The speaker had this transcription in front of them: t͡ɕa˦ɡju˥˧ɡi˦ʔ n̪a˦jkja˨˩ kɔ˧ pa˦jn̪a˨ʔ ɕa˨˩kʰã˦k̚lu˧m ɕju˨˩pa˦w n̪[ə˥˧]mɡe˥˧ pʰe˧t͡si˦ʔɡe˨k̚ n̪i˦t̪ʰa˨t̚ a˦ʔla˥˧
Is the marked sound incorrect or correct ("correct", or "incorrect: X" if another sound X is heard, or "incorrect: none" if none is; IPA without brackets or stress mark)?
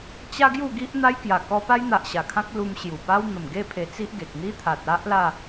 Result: incorrect: ə˨˩